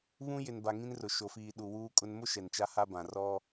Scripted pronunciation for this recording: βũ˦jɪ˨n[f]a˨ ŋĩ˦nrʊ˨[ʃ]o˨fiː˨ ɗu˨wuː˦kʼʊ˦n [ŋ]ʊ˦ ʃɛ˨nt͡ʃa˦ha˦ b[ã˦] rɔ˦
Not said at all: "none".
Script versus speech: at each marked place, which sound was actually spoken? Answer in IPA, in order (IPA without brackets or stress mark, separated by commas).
b, ʃ, m, ã˨